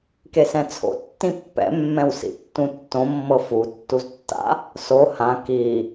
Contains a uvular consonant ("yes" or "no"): no